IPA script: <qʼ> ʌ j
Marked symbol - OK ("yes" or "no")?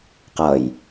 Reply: no